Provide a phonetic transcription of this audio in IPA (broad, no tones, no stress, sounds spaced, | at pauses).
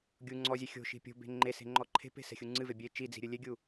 ɡʲ u ŋ͡ǀ ɔ zʲ e xʲ o̤ ʃ i̤ pʲ o̤ b e̤ ŋ͡ǃ e s e̤ ŋ͡ǃ ɔ ǃʰ e̤ p e̤ s ɛ̤ xʲ u ŋ͡ǀ ɨ v e bʲ e t͡ʃ i d͡z i̤ ɾʲ ɨ lʲ e ɡʲ u